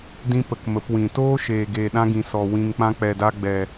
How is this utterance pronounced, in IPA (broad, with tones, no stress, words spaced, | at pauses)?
dĩ˦pə˨k mə˨˦pwĩ˨ toː˦ʃeː˨ɡeː˨ ɗã˦ɡĩ˨sɔ˨ wĩ˨ŋk͡pã˧k͡pɛ˨da˧ ɡ͡bɛ˨